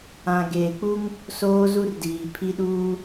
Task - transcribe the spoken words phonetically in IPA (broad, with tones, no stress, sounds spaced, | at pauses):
ã˨ ɡ eː˨ k͡p u˦ ŋ | s oː˦ z u˦ r d iː˨ pʰ i˦ ɗ uː˦